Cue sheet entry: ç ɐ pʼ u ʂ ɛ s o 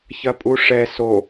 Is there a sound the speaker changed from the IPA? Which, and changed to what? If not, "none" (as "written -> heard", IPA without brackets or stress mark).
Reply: none